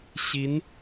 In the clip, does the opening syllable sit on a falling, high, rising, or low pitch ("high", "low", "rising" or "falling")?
rising